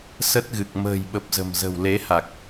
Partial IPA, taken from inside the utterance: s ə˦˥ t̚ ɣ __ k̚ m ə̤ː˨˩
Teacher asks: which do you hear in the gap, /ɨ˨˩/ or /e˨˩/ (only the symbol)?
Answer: ɨ˨˩